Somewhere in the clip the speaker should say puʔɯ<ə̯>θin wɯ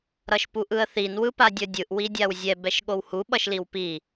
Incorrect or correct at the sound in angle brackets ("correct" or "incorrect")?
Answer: correct